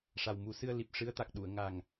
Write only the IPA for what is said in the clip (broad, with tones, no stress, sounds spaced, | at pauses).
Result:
ʂ a˨˩ w m u˨˩˦ s ɨ˧ ə̯ l i˨˩ p̚ ʂ ɨ˧˥ ə̯ t̪ a˨˩ k̚ ɗ u˨˩˨ ə̯ ŋ a˨˩ ŋ